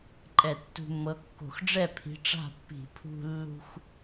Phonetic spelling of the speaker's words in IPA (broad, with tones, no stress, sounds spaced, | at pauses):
ǃʼ ɛ˧˩˧ tː ṳ˧ mː ɤ˨˥ kː o̤˧˩˧ x ɖ͡ʐ ɛ˥˩ pʰ i̤˨˥ ʈ͡ʂ a̤˥˩ pː i̤˧˩˧ pʰ ṳ˧ lː ṳ˧ x